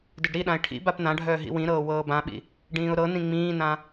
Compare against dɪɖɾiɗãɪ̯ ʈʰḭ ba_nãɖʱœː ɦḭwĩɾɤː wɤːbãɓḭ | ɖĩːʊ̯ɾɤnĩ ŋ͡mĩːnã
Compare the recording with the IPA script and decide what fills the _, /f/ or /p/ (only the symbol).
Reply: p